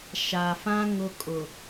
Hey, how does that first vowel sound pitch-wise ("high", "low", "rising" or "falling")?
low